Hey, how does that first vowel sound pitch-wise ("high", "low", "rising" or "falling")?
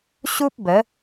high